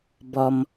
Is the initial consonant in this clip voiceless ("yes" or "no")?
no